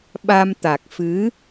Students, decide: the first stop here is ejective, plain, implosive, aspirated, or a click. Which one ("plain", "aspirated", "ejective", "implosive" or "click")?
implosive